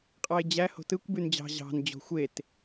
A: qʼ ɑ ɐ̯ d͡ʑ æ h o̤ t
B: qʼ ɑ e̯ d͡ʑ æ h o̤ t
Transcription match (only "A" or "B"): B